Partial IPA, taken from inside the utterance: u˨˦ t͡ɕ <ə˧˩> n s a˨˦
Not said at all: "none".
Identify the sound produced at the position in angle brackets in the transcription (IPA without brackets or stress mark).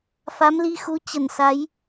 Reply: ə˧˩